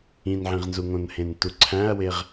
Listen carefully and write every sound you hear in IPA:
ĩ n ʕ ĩ ʁ n z u ŋ õ n h ẽ n t u ǀʰ æ̃ ɐ̯ w e ʁ

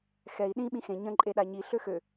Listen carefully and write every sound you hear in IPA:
x ɛ i̯ ɗ ĩ ɓ ĩ x ẽ ɲ ə̃ ǃʼ e ɗ a ɲ i ɬ ø x ø

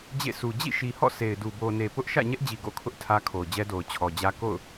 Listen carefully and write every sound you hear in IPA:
d͡ʑ ḛ˦˨ sʰ u˨ d͡ʑ ḭ˦˨ ʃ i˨ h ɔ̰˦˨ sʰ e˨ ɪ̯ d u˨ b o˨ n e˨ p ʊ˦ ʔ ʃ ä̰˦˨ ɲ ɛ˦ ʔ d͡ʑ i˨ ɡ o̰˦˨ kʰ ʊ˦ ʔ tʰ ä˦ kʰ o˨ ʊ̯ d͡ʑ ɛ˦ d o˨ ʊ̯ t͡ɕʰ ɔ˨ d͡ʑ ä˦ k o̰˦˨ ʊ̯

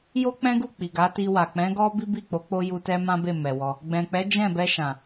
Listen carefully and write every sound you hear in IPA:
j o˦ k͡p ɛ̃˦ ɡ u˦˨ k͡p i˨ ɡ a˨˦ t i˧ w a˨ k͡p ɛ̃˨˦ ɡ ɔ˦ b i˦ b i˦˨ k͡p o˨˦ k͡p o˧ j u˧ t ɛ˦ m ã˦ b e˦˨ m ɛ˨ w ɔ˧ | ɡ͡b ɛ̃˨ k͡p ɛ˨˦ d͡ʒ ɛ̃˦˨ b ɛ˧ ʃ ã˨

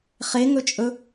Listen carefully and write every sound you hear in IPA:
χ e ŋ ɵ t͡ʃʼ ɵ

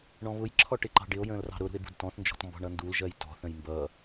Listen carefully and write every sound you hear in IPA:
ɳ ɔ̃ β ʊ j ǁʰ ɔ ʈ ɪ ǃ ɑ̤ ɖ ɪ o̯ j ə̃ː l r ɑ̤ ɾ ʊ ɾ ṳ e̯ b ṳ d t ɔ̃ θ n d͡ʒ ɔ̤ t m b ɔ̤ ɳ ʌ n d u l ʒ ɜ j t ɔ̤ θ ə̃ j m b ʌ

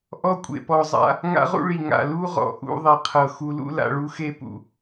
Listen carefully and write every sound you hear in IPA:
ʔ ɔ˦ kʷʼ ḛ˨ p ɔ˨ zˤ a̰˦ | ŋ a̰˦ ʁ ṵ˦ ɭ i˨ ŋ a̰˨ l u˦ ʁ ɔ̰˨ ʔ ṵ˦ ðˤ i˨ qʰ ɤ˨ x u˨ l ṵ˦ l a̰˨ ɭ u˦ x e˦ p ṵ˨

